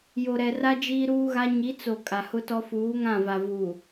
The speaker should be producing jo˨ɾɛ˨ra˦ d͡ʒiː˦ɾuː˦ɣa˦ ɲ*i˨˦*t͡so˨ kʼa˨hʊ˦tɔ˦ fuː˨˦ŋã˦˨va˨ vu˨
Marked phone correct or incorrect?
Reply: correct